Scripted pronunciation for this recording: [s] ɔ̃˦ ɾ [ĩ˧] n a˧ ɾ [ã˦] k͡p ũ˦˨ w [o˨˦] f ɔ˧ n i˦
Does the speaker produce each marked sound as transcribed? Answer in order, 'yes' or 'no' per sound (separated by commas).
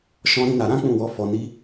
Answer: no, no, yes, no